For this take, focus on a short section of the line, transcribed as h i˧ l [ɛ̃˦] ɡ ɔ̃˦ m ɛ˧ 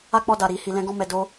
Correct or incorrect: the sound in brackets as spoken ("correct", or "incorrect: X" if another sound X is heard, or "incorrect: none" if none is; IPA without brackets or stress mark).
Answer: correct